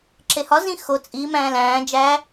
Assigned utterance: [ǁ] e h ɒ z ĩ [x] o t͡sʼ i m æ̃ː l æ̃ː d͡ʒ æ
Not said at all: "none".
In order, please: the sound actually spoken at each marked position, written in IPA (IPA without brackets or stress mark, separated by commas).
ǁ, x